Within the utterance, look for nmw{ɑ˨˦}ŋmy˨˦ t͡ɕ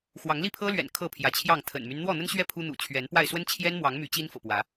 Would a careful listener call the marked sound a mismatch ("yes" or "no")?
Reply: no